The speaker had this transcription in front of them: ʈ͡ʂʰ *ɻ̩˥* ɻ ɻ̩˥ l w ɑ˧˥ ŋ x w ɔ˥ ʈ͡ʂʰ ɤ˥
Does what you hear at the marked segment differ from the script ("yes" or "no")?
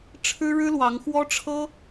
no